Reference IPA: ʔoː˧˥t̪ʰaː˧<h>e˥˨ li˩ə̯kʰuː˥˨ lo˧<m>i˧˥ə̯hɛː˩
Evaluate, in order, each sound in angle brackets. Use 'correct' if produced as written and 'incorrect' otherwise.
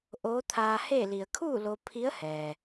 correct, incorrect

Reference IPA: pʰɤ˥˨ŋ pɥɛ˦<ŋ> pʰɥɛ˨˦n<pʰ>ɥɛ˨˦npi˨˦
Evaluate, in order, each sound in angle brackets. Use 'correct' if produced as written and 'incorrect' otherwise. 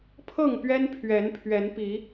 incorrect, correct

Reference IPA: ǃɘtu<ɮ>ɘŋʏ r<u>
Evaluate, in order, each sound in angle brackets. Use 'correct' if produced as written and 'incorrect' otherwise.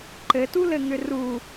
incorrect, correct

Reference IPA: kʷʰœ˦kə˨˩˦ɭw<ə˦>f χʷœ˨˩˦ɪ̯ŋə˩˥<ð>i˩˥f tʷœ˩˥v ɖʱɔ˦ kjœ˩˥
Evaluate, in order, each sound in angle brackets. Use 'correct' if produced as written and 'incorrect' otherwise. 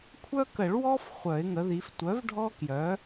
incorrect, correct

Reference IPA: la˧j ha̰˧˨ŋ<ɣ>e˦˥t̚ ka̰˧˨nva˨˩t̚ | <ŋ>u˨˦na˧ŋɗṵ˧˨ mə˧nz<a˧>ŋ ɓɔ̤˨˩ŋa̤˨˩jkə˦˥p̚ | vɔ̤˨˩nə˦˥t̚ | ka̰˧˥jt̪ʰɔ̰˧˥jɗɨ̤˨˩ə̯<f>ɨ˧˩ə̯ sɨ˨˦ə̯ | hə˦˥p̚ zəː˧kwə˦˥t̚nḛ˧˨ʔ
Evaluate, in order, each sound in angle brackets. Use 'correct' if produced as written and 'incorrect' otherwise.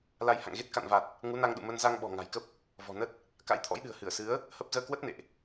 correct, correct, correct, incorrect

